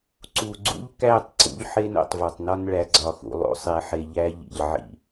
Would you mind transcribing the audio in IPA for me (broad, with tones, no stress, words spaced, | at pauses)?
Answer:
ǀu˨ɡ͡ǀṵ˦ʎkæ˦˨tˤ ǀṵ˦ʎħe˦n o̰˨tˤvɒ˨tˤnɒ˦n ɭæ˨ɡ͡ǀɒ˨xṵ˨ lˠo̰˦sˤe˨˦ħe˨ ʎæ˦ ʎḭ˨ʎʕḭ˦